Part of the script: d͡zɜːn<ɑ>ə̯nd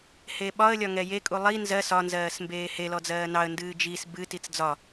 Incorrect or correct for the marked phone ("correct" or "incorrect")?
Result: correct